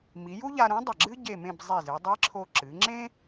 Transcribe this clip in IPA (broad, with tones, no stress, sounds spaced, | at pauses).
m i˩˧ j u˥ ʎ a˧ ɾ ũ˧˥ dˤ ɐ˧˩ ɡ͡ǁ ɨ˥ ɟ e˥˧ m ẽ˥˧ b zˤ i˧˩ z ɨ˩˧ dˤ i˧˥ ǁʰ o˧ ǁ ɨ˩˧ ŋ͡ǁ ẽ˥